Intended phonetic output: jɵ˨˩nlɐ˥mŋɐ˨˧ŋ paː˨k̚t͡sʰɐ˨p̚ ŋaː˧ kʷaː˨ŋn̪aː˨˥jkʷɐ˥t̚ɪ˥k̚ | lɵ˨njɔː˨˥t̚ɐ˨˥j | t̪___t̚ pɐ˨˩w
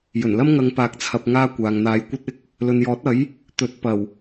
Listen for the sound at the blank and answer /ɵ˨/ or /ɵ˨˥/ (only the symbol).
ɵ˨˥